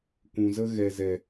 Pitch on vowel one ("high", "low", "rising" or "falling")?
low